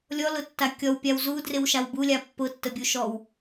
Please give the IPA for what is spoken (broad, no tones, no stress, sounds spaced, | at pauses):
lʲ ɔ l ʊ tː a kʲ ɔ w pʲ a w z u d r ɪ w ʃ a w b u lʲ a pː ʊ tː ə bʲ u ʃ ɔ w